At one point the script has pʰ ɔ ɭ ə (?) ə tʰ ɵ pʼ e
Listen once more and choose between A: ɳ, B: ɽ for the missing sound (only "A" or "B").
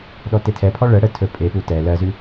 B